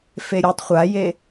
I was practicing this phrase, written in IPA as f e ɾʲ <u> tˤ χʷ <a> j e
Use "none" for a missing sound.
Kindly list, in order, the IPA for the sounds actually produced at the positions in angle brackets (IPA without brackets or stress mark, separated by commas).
u, a